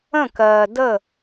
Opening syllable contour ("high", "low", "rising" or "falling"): falling